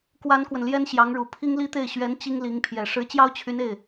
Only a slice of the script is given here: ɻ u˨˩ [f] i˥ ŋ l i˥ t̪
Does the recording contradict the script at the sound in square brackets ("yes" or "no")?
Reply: yes